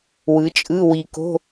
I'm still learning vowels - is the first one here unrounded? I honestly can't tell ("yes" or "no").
yes